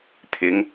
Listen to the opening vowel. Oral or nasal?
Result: oral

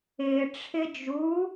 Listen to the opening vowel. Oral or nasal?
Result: oral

